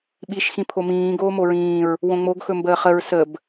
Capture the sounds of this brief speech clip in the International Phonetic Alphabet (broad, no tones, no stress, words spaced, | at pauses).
ɓiʃ xĩpʰomĩː ɡoːmoɹĩːɹ | wõŋ͡moɡ xɵmbəːχəɹ səb